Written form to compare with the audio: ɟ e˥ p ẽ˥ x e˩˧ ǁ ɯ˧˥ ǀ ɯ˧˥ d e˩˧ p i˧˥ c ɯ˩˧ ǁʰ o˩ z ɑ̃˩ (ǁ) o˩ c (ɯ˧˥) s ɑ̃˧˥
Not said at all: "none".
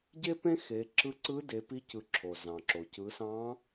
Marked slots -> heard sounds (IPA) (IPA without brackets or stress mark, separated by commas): ǁ, ɯ˩˧